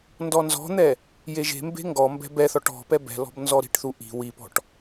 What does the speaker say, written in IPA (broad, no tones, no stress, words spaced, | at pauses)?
ndɔnzɔ̤n̪ɛ | jeʒe̤mbe̤ ŋɡɔ mbɛ̤bɛθɔʈ ɔ̤pɛ bɛ̤lɔ̤b nzɔɾi̤ʈθu ʔi̤ wipɔ̤ʈ